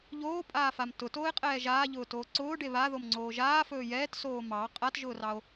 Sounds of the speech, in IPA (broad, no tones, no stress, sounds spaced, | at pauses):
ʎ oː pʼ aː f a m t ʊ t oː e̯ qʼ ɛː ʒ aː ʎ ʊː t oː ǀ ʊː ɖ e β a ð o m ŋ͡ǀ oː ʒ aː f ɵː j ɛː t s oː m ɑ qʼ a t ʒ ʊː r ɑ o̯